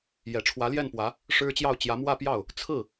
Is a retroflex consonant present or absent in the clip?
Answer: present